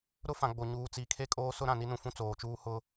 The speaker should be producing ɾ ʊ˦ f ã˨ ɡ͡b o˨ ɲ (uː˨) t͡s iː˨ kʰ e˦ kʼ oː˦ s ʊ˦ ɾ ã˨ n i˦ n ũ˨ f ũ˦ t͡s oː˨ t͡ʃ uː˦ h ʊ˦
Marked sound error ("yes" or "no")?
no